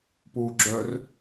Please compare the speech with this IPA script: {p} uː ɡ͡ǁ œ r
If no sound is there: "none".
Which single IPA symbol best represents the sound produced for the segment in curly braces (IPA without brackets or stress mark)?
p